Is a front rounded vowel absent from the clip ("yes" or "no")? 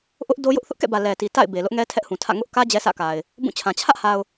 yes